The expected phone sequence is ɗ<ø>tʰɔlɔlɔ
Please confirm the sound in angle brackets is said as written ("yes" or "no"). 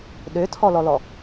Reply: yes